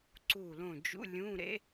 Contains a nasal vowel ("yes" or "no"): yes